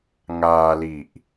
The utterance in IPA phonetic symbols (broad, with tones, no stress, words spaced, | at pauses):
ŋaː˧li˨˩ʔ